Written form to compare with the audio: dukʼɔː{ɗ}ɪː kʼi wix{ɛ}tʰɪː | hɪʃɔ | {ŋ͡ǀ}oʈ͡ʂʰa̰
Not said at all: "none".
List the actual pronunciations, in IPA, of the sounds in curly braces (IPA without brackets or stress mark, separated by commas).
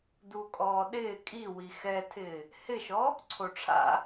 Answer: ɗ, ɛ, ǀʰ